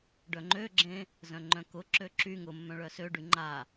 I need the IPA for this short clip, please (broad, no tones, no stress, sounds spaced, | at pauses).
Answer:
ɖ œ ŋ͡ǃ ø ɡ͡ǁ ẽ | z œ̃ ŋ͡ǃ œ̃ k ʊ ǁ ø ǁ y ŋ ʊ mː œ̃ ɭ œ s ø ɖ y ŋ͡ǃ a